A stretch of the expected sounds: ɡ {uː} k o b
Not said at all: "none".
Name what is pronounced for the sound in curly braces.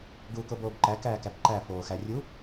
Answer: uː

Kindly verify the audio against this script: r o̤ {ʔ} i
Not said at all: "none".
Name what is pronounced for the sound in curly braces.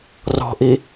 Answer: ʔ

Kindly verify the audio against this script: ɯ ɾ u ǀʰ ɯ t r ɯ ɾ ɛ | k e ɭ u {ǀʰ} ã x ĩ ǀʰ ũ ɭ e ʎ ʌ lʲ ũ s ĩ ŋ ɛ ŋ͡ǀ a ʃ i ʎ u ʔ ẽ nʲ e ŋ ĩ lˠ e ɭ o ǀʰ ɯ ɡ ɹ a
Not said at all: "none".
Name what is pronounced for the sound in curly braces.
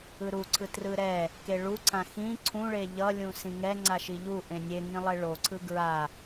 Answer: ǀʰ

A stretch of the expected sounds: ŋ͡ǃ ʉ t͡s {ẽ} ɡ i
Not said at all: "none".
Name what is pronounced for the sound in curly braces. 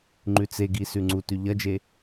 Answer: e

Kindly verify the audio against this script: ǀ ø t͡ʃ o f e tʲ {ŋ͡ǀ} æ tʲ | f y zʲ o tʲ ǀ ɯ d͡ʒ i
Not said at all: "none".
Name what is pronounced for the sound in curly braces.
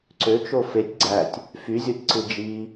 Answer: ɡ͡ǀ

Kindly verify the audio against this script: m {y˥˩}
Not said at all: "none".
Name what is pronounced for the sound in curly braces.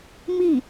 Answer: i˥˩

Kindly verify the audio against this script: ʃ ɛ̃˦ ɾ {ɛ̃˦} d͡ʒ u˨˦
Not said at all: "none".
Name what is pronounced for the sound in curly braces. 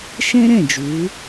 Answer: ɛ̃˦˨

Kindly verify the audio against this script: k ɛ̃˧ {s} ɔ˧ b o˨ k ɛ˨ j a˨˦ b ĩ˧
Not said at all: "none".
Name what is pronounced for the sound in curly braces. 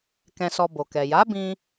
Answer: s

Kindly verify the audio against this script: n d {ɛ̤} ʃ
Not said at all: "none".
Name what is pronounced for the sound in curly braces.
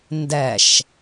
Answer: ɛ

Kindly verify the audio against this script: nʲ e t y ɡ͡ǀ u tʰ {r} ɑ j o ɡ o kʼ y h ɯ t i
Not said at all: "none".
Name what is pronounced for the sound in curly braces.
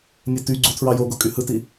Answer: ɹ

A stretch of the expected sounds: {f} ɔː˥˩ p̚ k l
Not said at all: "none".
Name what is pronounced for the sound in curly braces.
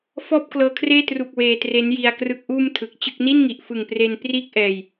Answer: f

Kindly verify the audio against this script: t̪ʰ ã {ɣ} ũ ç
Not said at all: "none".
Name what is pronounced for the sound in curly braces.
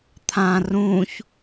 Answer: r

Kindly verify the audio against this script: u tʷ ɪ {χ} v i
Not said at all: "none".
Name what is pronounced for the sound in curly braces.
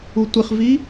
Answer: χ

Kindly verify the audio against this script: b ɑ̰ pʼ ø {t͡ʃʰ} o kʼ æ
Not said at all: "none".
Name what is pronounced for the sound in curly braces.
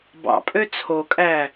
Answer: t͡sʰ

